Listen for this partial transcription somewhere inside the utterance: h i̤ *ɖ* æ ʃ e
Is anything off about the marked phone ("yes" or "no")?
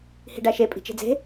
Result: no